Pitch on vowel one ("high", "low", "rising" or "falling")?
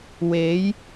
rising